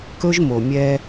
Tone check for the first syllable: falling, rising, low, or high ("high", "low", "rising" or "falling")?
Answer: high